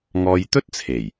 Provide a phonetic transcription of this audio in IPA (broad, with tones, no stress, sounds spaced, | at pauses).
ŋ ɔː˧ j t̪ ɵ˥ t̚ t͡sʰ e˨˩ j